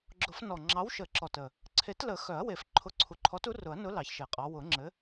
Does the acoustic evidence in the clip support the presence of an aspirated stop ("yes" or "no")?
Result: yes